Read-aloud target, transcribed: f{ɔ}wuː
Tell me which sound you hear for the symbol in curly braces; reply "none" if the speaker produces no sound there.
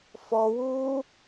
ɔ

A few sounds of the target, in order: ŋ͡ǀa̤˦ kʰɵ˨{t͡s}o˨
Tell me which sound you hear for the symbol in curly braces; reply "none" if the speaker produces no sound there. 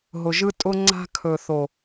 θ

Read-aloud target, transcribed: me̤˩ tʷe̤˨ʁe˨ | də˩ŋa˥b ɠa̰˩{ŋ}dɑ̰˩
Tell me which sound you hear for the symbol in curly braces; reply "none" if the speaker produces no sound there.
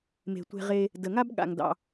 ŋ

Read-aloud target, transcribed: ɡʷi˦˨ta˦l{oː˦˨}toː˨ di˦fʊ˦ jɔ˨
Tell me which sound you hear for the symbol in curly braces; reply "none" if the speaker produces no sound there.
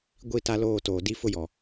oː˦˨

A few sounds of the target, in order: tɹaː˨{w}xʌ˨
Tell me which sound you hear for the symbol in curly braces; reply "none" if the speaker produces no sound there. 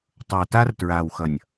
w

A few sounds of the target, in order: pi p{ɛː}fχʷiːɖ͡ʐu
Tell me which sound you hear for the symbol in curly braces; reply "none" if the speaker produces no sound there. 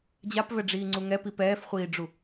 ɛː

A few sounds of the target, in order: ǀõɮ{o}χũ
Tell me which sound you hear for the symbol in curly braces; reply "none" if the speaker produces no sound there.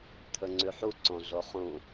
o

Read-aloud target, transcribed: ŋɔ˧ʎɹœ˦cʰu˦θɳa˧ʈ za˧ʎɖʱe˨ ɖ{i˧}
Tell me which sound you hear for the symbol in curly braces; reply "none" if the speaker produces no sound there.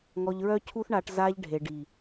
i˨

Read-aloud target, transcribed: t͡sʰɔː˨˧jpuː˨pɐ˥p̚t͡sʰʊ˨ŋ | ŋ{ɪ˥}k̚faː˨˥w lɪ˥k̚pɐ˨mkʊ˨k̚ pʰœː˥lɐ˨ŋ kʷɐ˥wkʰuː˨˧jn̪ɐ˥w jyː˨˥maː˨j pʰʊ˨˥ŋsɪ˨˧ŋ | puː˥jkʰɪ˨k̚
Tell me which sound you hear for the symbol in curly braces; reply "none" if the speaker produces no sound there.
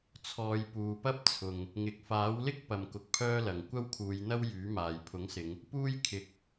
ɪ˨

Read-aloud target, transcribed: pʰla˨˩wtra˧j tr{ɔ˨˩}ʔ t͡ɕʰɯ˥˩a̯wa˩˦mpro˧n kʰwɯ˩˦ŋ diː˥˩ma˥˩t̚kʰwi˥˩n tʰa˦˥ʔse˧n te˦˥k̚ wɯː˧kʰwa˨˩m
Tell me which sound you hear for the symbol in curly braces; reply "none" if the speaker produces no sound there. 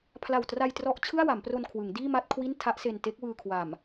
ɔ˦˥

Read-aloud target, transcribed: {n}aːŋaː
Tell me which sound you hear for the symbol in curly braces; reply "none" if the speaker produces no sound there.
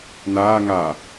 n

